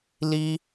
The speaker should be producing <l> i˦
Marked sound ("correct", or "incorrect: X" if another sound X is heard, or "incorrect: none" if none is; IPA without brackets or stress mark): correct